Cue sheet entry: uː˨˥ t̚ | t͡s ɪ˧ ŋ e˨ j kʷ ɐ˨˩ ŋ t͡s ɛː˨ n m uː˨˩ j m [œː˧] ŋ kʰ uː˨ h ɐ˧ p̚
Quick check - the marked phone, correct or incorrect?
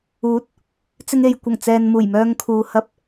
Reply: correct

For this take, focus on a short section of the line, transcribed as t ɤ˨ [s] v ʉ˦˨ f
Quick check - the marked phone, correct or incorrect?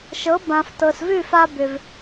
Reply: correct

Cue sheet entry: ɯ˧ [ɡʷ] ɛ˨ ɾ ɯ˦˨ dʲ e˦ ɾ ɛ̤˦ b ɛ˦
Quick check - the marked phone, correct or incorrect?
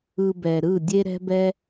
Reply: incorrect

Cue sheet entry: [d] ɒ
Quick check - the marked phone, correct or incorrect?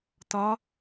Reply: incorrect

